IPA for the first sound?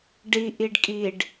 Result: ɖ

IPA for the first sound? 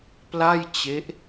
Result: p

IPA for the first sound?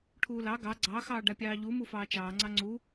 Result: ʈʰ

